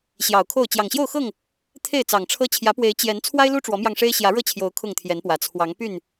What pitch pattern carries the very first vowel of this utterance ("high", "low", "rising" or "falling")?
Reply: low